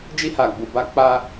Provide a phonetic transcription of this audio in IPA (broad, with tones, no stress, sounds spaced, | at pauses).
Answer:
d͡ʒ i˧ h a˨ ɡ͡b u˨ b a˧ k͡p a˧